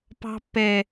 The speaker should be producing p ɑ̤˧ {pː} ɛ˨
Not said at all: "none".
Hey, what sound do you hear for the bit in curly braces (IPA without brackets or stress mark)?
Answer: pː